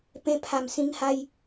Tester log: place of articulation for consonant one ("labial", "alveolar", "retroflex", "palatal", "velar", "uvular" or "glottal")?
labial